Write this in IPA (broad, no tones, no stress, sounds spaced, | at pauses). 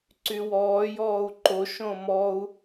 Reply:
ǀ y w ɔː j ɔː u̯ ǃ o ʃ õ m ɔ u̯